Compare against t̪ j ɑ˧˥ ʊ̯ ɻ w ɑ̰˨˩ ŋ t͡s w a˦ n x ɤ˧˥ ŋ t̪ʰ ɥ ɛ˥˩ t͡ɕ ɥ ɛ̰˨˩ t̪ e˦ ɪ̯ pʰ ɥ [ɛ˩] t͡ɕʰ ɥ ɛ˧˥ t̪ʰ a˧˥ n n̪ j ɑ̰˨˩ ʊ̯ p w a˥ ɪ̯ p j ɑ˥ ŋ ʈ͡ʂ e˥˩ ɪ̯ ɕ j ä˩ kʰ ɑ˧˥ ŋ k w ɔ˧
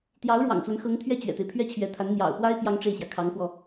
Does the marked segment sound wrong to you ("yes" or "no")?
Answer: yes